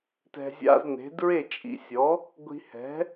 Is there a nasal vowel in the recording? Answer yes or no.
no